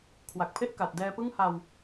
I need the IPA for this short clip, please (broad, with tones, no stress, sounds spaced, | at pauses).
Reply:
kʰ w a˨˩ k̚ pʰ e˥˩ ʔ k a˨˩ t̚ d ɛː˧ p ɯ˥˩ ŋ h a˧ w